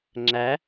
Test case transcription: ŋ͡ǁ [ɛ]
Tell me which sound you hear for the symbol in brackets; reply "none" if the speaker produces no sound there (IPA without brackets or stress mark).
æ